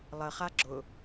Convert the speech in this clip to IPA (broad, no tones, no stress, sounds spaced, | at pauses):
lˠ ə χ a ɡ͡ǁ ʊ